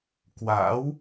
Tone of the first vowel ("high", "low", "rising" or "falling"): rising